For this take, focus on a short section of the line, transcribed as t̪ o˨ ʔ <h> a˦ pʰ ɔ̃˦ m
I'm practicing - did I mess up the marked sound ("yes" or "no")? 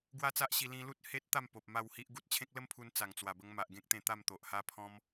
no